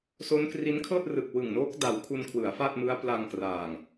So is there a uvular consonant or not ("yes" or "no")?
no